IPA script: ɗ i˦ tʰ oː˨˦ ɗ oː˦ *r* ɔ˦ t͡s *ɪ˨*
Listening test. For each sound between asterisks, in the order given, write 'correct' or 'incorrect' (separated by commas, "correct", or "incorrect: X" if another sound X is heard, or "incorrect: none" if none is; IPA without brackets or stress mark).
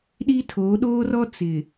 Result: correct, correct